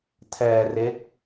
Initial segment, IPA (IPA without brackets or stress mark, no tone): tʰ